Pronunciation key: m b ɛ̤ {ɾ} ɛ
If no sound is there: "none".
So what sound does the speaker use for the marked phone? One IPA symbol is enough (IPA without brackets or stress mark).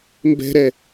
ɾ